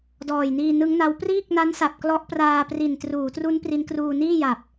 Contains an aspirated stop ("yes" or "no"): no